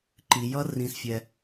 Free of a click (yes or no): no